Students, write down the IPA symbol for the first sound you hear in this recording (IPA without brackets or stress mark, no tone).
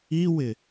i